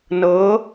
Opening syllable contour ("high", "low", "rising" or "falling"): rising